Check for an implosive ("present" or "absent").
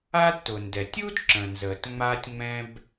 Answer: absent